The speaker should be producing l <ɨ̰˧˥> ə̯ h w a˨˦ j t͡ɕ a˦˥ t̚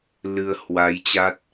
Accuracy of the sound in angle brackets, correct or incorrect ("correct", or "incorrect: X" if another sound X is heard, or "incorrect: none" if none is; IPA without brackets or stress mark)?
incorrect: ɨ˧